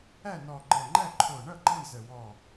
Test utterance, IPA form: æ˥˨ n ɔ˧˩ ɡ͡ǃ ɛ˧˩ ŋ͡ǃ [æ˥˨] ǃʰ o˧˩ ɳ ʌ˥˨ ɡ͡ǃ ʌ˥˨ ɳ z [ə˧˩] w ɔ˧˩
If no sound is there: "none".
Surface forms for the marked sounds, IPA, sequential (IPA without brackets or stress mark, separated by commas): æ˥˨, ə˧˩